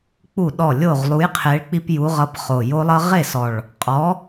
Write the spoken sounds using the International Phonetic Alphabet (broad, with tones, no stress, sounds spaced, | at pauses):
k͡p u˥˩ ɗ ɔ˥˩ lʲ o˥˩ ʁ lˠ u˨˥ j qʰ e˨˥ ɭ k͡p i˦ p j u˨˥ ʁ ʌ˨˥ p χ o˨˩ j o˦ lˠ ʌ˦ ʁ e˥˩ s ɔ˨˩ ɭ | qʼ ɔ˨˥